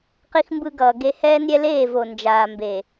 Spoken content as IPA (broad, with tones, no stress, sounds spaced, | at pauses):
q i˦ x m b ɯ˦ ɡ ʌː˨ ɡ e˦ h ɛː˦ n ɾʲ ɛ˦ l eː˦˨ v o˨ n d͡ʒ aː˨ m b e˨